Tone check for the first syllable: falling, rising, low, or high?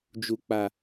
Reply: low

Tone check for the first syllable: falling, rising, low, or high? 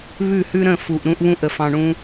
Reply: falling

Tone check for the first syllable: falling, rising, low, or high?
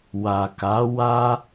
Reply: low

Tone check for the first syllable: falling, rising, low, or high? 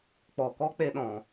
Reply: low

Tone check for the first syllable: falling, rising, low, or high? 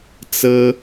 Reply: high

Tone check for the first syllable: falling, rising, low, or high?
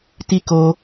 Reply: high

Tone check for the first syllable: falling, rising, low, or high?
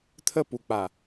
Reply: falling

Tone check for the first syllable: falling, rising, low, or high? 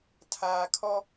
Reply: low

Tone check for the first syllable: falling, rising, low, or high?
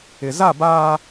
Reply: low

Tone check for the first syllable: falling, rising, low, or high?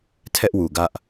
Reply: high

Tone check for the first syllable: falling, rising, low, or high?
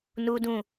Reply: high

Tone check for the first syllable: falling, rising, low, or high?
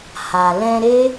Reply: low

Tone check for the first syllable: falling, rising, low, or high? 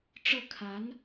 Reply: falling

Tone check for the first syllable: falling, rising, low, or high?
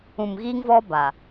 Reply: low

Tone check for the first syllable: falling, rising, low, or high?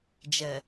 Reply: low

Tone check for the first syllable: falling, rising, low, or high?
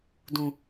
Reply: low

